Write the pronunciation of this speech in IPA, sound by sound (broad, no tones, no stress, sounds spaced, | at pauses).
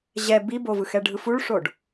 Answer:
ʑ ɛ b i b o v ɯ x ɛ ɖʱ ɯ f u ɭ ʂ o ɖ